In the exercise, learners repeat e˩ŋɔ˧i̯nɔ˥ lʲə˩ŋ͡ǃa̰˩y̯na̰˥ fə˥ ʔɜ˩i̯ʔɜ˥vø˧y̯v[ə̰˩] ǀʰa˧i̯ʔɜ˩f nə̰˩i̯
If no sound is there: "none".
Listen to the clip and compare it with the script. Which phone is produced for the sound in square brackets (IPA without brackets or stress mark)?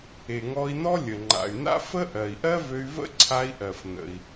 ə̰˥